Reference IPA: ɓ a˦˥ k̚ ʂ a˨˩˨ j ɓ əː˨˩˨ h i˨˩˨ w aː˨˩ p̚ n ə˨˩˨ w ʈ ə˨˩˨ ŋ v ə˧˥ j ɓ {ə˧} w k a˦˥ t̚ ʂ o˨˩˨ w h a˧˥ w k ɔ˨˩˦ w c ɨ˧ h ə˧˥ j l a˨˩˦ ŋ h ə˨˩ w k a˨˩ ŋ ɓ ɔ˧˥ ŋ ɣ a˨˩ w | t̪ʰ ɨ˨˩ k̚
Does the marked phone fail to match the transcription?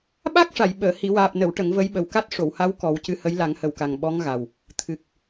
yes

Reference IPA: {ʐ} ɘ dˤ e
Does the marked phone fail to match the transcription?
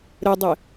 yes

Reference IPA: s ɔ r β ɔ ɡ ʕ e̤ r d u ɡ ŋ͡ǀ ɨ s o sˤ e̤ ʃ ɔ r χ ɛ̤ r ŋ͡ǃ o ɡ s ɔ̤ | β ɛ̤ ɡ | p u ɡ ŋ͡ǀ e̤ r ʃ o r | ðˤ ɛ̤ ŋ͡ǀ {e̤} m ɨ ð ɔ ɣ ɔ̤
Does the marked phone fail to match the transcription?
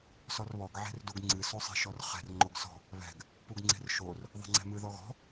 yes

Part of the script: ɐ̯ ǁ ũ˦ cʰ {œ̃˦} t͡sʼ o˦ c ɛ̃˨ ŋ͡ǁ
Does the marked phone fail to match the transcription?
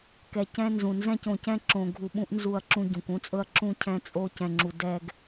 yes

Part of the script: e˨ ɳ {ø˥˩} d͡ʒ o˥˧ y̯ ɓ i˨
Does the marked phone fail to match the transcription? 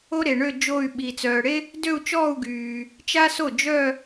yes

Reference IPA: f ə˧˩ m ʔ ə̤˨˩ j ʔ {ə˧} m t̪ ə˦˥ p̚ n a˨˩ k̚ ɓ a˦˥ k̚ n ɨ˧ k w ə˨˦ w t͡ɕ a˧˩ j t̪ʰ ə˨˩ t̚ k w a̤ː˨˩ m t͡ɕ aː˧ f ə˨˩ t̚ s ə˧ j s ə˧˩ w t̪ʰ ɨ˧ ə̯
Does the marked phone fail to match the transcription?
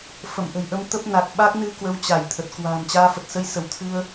no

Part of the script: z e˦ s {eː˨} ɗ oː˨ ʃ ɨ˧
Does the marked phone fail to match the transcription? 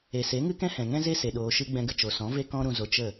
yes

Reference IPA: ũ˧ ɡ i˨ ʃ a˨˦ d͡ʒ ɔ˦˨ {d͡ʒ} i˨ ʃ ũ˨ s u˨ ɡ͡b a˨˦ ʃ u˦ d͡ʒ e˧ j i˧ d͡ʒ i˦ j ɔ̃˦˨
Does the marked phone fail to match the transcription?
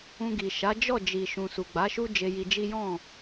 no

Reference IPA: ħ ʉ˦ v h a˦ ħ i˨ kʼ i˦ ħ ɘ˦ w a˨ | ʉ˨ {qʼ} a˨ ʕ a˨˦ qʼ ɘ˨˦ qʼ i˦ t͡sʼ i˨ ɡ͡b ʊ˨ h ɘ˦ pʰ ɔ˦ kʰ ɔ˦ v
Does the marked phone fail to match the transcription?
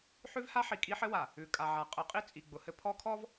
yes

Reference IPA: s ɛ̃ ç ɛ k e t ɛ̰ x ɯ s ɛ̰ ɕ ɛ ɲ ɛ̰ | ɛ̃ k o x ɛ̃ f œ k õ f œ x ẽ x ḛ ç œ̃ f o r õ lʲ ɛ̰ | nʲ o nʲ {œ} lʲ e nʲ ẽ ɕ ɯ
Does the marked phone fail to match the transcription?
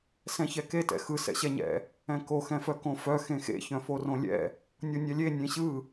yes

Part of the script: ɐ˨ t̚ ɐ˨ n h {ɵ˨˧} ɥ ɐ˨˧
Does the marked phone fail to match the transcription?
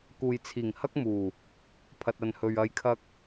yes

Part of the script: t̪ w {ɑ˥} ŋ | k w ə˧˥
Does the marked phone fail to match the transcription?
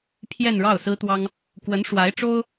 no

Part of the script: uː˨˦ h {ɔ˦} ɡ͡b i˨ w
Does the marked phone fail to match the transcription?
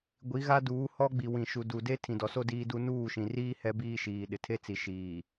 no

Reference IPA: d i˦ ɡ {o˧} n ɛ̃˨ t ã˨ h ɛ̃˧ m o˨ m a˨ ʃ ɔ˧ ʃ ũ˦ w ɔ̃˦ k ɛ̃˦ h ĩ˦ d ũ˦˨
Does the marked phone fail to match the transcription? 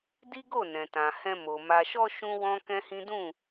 yes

